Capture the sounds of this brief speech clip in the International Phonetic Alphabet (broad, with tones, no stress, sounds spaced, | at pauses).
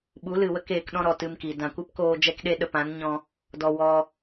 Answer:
ɓ u˨˦ l ɨ˨ w ə˦ k eː˧ k ɗ ɔ̃˦ ɾ ɔ˨ t ɨ˧ m k i˨ d ã˨ kʷ ɨ˦ p k oː˧ d͡ʒ ɛ˦ k ɗ e˦ ɗ ə˨ p ã˨˦ n ɲ ɔ̃˧ | d ɔ˨ w ɔ˧